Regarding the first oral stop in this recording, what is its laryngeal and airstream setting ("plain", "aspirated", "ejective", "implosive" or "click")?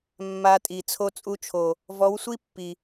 ejective